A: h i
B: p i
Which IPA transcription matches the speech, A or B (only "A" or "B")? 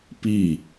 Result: B